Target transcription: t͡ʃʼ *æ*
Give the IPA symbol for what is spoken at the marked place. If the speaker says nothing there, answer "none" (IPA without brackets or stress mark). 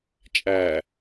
æ